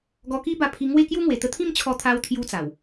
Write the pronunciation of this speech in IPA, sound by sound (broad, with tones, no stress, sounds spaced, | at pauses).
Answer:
ɡ ɔ˧ k i˦ b a˧ pʰ i˧ ŋ w e˥˧ k j u˦ ŋ w e˨˩ t̪ ə˧ t̪ʰ ĩ˥˧ m t͡ɕʰ ɔ˧ t̪ʰ a˧ w t̪ʰ j u˧ t͡s a˨˩ w